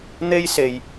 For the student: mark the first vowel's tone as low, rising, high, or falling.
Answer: high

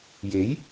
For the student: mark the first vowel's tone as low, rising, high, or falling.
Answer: rising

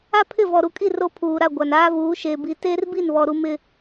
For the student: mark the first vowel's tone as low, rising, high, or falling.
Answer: high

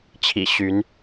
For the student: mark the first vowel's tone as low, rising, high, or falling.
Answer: low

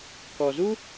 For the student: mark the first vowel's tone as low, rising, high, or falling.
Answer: low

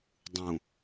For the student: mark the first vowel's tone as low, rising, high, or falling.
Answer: low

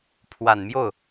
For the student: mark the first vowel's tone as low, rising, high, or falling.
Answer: low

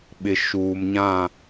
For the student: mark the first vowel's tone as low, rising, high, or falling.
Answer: low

